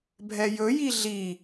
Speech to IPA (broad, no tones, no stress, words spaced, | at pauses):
bʱɛjɵ jiɮi